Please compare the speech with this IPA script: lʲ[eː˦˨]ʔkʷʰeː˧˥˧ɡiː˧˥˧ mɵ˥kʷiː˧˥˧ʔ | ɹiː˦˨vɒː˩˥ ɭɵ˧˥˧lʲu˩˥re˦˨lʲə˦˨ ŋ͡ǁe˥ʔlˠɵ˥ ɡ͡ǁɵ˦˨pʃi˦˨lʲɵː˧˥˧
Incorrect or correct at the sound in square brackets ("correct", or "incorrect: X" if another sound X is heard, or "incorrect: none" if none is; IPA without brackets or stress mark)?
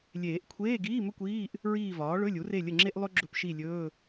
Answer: incorrect: eː˨˩˦